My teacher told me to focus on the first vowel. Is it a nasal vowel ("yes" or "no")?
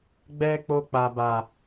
no